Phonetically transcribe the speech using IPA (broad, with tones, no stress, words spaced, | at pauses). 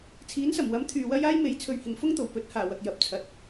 t͡sʰiː˨˥nsɐ˨˩mwɐ˨˥m t̪ʰyː˨wɐ˥j aː˥jme˨˥jt͡sʰɵ˨ɥ hɪ˨˩ŋfʊ˥ŋt̪o˨˩w pɵ˨˥t̚haː˨˩ wɐ˨k̚jɐ˨˥p̚t͡sʰɐ˨t̚